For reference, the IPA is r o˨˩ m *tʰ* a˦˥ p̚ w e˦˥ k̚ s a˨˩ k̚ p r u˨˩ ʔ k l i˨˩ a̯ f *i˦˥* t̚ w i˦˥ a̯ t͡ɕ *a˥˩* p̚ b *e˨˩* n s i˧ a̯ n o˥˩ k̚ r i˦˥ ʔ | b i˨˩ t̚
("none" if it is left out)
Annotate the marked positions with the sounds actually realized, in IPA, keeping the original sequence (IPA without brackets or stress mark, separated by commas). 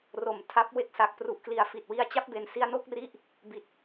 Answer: tʰ, i˨˩, a˦˥, e˩˦